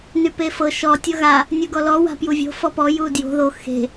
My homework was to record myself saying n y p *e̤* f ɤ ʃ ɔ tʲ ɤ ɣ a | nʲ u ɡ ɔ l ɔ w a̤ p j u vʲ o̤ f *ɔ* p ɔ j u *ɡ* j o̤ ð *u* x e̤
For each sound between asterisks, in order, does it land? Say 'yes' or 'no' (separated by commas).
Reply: no, yes, no, no